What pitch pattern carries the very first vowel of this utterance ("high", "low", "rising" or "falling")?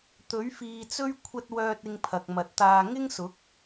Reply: rising